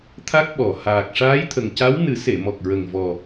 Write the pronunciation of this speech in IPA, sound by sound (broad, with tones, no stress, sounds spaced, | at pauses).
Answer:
t̪ʰ a˦˥ k̚ ɓ ɔ˨˩ h aː˨˩ k̚ ʂ aː˧˥ j t̪ʰ ə˨˩ ŋ c a˧˥ w n ɨ˨˩˦ s e˨˩˨ m ɔ˨˩ k̚ ɹ ə˨˩ ŋ v ɔ˨˩